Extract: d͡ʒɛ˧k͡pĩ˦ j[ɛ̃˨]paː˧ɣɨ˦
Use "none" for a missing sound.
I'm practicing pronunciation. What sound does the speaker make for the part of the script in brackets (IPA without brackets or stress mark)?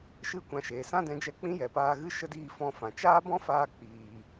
ɛ˨